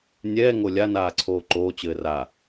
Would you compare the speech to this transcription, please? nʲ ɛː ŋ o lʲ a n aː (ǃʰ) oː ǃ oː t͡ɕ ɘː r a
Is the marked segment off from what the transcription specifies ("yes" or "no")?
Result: yes